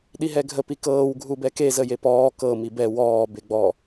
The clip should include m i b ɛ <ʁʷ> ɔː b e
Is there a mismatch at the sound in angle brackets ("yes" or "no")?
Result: yes